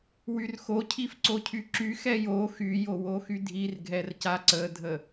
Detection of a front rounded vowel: present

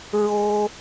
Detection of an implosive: absent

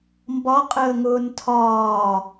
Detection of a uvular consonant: present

